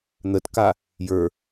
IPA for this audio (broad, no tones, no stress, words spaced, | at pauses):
n̪ətka | jə˞